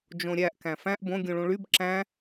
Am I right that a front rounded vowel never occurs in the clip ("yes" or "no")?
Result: no